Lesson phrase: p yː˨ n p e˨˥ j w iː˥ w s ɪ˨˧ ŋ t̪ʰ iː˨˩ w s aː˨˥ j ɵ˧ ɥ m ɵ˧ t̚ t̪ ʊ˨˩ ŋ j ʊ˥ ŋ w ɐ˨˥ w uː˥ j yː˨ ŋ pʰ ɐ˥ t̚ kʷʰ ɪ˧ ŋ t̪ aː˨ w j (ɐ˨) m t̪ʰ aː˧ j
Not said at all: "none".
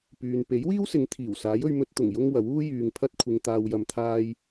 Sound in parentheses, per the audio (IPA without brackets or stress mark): ɐ˨